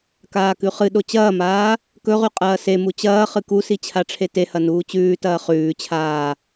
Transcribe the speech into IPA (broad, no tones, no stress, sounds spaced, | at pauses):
k aː k ʉ χ ɨ ɗ o t͡ɕ ɐː m aː | k ɵ ʁ ʉ qʼ ɐː s e m u t͡ɕ ɐː χ ɨ k u s i t͡ɕʰ a ʈ͡ʂʰ e t e h ɐ n uː t͡ɕ ʉː t ɐː χ ʉː t͡ɕʰ aː